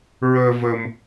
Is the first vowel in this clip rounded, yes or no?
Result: no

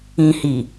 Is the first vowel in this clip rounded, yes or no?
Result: no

